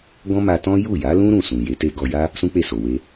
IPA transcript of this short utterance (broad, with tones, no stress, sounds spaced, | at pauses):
ɡ ɔ̃˦ m a˧ t ɔ̃˦ j u˦˨ j a˨˦ l ũ˦ ɾ ũ˦˨ s ũ˨ j e˨˦ t e˦ ɡ ɔ˧ j a˦ | s ũ˦ k͡p e˦˨ s o˨ w e˧